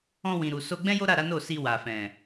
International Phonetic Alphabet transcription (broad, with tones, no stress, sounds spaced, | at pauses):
ɔ̃˧ w ĩ˨ ɾ u˨ s o˧ ɡ͡b ɛ̃˦ j o˦ ɾ a˦˨ ɾ a˨˦ n o˦˨ s i˧ w a˨ f ɛ̃˨